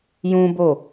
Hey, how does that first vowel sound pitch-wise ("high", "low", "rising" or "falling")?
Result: high